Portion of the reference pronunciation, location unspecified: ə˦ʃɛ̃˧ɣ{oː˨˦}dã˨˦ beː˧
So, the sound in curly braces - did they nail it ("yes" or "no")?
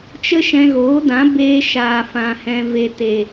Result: yes